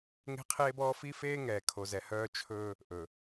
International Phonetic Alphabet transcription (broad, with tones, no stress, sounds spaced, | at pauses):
ŋ e̤˦ qʰ eː˦ b ɔː˦ f i˦ f eː˦ ŋ ɛː˨ kʰ o˨ z ɛ˨ h œː˦ t͡ʃʰ ɵː˦ | ʔ ɵ˨